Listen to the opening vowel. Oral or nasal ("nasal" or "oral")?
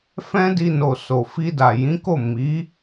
nasal